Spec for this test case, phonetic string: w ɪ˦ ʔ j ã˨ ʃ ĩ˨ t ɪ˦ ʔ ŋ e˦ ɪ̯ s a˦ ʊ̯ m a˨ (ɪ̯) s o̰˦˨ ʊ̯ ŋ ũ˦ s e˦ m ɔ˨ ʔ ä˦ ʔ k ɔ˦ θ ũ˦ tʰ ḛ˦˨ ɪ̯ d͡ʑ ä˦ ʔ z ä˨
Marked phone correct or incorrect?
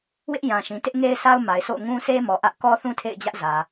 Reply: correct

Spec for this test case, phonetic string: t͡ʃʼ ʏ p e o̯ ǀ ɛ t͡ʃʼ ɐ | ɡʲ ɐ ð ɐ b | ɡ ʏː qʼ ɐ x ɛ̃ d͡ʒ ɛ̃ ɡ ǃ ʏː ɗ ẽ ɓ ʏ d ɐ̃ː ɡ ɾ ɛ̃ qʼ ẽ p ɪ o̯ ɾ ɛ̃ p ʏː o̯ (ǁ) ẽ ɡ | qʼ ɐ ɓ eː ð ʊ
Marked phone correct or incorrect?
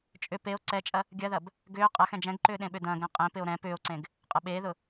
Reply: incorrect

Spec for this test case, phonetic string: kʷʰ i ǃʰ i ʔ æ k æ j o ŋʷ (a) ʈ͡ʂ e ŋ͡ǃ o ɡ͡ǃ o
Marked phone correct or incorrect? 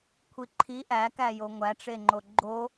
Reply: incorrect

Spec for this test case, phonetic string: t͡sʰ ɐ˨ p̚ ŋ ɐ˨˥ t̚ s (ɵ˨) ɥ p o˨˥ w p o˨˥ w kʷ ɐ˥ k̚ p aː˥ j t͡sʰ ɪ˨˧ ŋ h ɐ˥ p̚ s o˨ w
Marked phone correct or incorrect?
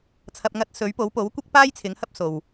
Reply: incorrect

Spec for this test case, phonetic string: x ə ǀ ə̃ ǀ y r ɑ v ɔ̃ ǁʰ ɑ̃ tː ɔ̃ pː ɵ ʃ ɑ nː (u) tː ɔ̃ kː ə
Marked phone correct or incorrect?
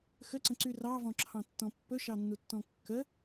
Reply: correct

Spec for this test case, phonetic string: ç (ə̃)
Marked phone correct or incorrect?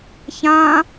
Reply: incorrect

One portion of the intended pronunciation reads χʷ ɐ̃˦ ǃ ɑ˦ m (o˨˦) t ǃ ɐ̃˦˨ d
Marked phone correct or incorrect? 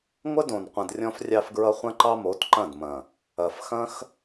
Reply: correct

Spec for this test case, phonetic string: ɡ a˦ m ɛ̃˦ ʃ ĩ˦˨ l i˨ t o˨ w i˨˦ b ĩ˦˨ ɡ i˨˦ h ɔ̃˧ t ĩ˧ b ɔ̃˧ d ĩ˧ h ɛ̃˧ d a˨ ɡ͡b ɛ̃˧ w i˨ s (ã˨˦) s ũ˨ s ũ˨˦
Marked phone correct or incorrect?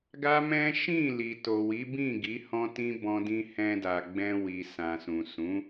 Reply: incorrect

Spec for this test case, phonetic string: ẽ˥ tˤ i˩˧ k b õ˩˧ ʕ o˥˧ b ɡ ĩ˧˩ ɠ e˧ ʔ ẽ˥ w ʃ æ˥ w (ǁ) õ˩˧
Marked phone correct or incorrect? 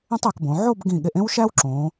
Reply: correct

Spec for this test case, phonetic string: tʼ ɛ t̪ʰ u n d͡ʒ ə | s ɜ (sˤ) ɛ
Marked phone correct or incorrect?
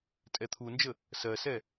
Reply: incorrect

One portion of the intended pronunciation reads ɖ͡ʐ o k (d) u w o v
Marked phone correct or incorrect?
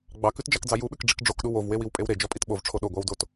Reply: incorrect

